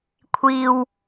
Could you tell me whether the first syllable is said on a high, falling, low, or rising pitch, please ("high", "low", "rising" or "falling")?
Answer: low